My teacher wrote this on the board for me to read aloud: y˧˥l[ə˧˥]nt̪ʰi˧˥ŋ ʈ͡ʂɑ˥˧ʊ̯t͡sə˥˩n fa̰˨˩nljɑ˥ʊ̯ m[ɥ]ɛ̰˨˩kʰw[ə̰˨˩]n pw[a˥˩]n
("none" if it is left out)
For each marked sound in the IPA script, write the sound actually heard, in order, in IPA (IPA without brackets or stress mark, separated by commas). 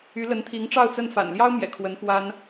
ə˧˥, j, ə˧˥, a˥